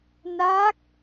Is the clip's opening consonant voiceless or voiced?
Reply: voiced